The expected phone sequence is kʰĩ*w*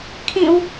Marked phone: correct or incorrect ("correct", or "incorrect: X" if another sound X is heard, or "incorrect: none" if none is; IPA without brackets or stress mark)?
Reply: correct